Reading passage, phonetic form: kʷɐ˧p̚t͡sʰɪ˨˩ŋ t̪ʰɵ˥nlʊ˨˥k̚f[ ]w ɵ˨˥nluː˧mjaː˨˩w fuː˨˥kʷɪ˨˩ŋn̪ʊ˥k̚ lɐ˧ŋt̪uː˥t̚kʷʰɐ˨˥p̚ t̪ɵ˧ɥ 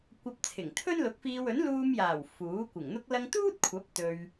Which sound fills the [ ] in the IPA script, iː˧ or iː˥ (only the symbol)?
iː˧